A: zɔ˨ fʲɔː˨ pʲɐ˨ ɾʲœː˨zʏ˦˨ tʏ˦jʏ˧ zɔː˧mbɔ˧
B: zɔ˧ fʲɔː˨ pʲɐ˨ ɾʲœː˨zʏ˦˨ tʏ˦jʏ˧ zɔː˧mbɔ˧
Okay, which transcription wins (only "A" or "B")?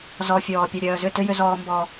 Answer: B